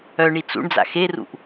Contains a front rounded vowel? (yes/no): yes